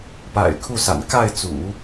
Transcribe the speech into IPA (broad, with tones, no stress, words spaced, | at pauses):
pa̰˨˩ɪ̯kʰu˥˩sa̰˨˩n ka˥˩ɪ̯t͡sṵ˨˩˦